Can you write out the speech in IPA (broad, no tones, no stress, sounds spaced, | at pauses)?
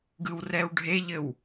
ɡ ɯ w r ɛ w ɖʱ e ʎ ɘ w